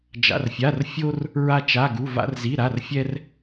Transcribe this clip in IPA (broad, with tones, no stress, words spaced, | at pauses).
d͡ʒa̰˧˥˧rfʲa˧˥˧r fʲo˥r | ɹa˥t͡ʃa˧˥˧ɡu˧˥˧ va̰˥rzi˧˥˧ɾa˧˥˧rfʲɛ˥r